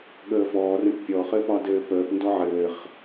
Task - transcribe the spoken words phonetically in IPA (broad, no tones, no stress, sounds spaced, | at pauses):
ɠ əː f ɔː r ə̃ ʈ pʲ ɔ χ ɘ p ɒ d ɘː p əː p n d ɔ ʕ ɘː χ